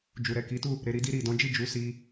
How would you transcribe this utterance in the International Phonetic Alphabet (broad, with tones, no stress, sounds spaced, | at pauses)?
d͡ʒ u˨ ɾ ɛ˨ k i˨˦ t u˦˨ | ɾ e˧ ɾ i˦ d i˧ ɾ i˨ d ɔ̃˨˦ d͡ʒ i˦˨ d͡ʒ u˨˦ s i˧